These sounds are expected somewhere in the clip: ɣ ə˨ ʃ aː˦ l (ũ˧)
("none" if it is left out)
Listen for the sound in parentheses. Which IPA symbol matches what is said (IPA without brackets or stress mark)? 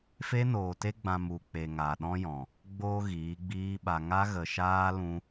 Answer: ũ˧